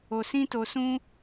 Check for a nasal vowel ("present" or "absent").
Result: present